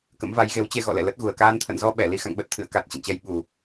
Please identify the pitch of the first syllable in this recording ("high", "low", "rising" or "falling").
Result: rising